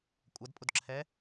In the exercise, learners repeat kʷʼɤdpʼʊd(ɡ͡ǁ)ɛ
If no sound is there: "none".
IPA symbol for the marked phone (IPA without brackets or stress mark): ǁʰ